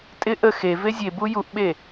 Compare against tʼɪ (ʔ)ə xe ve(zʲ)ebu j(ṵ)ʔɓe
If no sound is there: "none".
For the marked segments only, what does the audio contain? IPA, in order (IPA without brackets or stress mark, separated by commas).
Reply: ʔ, zʲ, u